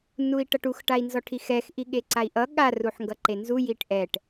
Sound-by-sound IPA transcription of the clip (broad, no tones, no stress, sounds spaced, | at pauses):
n u i̯ ʈ ʌ ʈ u x ʈ a i̯ n z ɔ ʈʰ i x ɛ x ʔ i ɠ e ǀ a i̯ ʔ ʌ ɠ a r u ħ ŋ ɡ ʌ ǃ e n z u j i ʈ ʔ ɛ ʈ